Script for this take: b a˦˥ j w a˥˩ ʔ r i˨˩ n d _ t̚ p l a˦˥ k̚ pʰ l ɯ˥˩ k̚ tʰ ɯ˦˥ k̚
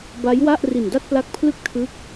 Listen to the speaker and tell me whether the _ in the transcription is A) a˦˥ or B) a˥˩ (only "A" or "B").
B